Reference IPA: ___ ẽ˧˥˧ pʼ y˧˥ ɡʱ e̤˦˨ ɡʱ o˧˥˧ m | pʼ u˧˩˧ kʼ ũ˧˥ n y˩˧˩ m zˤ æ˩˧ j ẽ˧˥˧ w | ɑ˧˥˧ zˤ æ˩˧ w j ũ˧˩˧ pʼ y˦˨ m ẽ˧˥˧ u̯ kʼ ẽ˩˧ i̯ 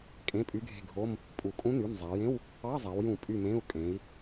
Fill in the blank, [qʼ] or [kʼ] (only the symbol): kʼ